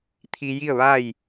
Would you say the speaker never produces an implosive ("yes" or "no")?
yes